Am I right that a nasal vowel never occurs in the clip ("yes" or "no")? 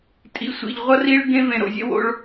no